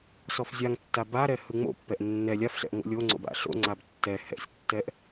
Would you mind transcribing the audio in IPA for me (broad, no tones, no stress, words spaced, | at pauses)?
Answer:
sɔfzʲaŋtːa baɾɛ hɯŋ͡mo̰pːɛʔ nːɛ lʲafɬɛ̰ʔ ŋo̰lʲoŋ͡ǀo̰b a̰ɬo̰ŋ͡ǀab tːɛ hɛ̰sʲtːɛʔ